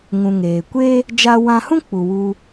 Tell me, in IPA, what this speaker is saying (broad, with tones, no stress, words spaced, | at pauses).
ŋũ˨ ŋeː˨ kʷe˦ | d͡ʒa˧wã˧hũ˦ k͡pu˨wu˧